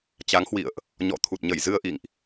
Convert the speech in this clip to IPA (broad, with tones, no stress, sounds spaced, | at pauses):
t͡ɕ a˨˦ ŋ h w ḭ˧˨ ə̯ ʔ | ɲ ɔ̰˧˨ t̪ʰ u˨˩ t̚ ɲ ə˧˩ j z ɨ˧ ə̯ ʔ ḭ˧˨ ŋ ʔ